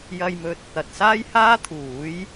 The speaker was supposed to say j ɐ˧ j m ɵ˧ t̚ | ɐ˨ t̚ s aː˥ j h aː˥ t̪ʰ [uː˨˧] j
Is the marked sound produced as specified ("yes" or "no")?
no